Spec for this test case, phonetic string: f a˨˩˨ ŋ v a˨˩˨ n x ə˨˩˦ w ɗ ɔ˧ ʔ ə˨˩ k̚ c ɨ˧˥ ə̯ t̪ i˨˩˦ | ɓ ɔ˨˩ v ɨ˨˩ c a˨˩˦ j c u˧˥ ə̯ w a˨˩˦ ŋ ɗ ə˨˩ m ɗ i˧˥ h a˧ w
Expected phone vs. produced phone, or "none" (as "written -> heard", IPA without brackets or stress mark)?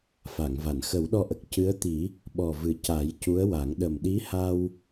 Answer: none